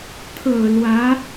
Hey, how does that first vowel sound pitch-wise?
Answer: low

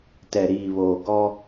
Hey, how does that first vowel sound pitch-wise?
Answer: low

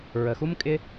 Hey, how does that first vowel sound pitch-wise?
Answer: low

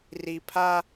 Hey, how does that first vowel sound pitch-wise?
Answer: low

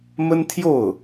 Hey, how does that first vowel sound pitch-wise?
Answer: high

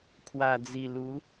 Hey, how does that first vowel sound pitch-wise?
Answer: low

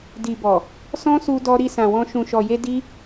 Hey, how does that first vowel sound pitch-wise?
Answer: low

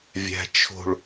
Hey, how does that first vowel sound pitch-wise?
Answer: low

